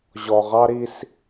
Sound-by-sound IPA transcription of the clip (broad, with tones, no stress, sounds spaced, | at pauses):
ʑ ɔ˨ ʁ ɑ˦ ɾ i˦ s